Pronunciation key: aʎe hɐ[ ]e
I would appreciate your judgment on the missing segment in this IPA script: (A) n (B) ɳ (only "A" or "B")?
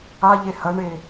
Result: B